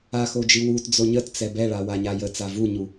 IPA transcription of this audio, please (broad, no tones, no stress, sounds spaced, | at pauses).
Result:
a x o d͡ʒ ɨ w u t d͡z o ɲ ə t t͡s ɛ b ɛ ɭ a w a ɲ a j ə t͡s a v u ɲ u